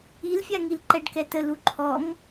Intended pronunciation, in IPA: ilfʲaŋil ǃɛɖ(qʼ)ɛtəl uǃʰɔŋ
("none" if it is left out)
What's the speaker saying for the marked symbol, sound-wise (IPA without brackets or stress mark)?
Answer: k